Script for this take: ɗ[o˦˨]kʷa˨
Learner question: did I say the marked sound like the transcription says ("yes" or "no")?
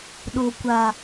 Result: no